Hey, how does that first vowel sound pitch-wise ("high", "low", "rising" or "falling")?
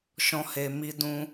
high